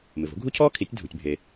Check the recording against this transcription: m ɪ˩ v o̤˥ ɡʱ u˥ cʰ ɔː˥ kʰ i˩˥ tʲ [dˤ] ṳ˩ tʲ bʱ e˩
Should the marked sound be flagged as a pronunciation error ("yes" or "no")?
yes